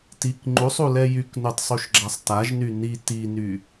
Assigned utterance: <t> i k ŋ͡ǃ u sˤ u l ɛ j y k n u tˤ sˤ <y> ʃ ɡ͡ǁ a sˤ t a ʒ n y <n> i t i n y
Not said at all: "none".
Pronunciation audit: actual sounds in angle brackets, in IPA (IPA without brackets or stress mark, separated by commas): t, u, n